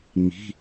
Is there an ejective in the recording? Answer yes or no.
no